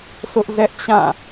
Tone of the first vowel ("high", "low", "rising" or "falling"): high